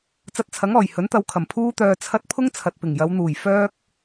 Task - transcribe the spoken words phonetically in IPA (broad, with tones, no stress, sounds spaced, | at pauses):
t͡s ɐ˧ t̚ t͡sʰ ɐ˨˥ ŋ ɔː˨˩ j h ɵ˨˥ n t̪ ɐ˧ w kʰ ɐ˨˩ m pʰ uː˥ t̪ œː˧ t͡sʰ ɐ˥ t̚ pʰ ʊ˥ ŋ t͡sʰ ɐ˨ t̚ p ɪ˨˩ ŋ j ɐ˨˧ w n̪ uː˨˩ j f œː˥ k̚